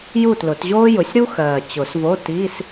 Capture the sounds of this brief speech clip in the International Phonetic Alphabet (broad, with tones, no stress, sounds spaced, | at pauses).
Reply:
j u˥˩ t l ʊ˨˩˦ t ʑ oː˥ j ʊ˩˥ sʲ ɾ u˥ x ɜː˨˩ t͡ɕ ʊ˨˩˦ s v o˧˥˧ t iː˧˥˧ s